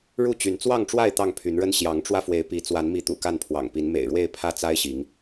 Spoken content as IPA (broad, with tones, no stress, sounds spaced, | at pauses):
ɻ u˥˨ t͡ɕ y˨˦ n t͡s w ɑ˥˨ ŋ ʈ͡ʂ w a˥˨ ɪ̯ t̪ ɑ˥˨ ŋ pʰ y˨˦ n ɻ ə˦ n ɕ j ɑ˨˦ ŋ ʈ͡ʂ w ä˧ f w e˨˦ ɪ̯ p i˨˦ t͡s w a˨˦ n m i˨˦ t̪ ṵ˨˩ k a˥˨ n pʰ w ɑ̰˨˩ ŋ p i˨˦ n m ḛ˨˩ ɪ̯ ɻ w e˥˨ ɪ̯ pʰ ä˥˨ t͡s a˦ ɪ̯ ɕ i˨˦ ŋ